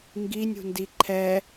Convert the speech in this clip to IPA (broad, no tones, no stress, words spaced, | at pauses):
ŋɡinʲṳndi ǃʰɛ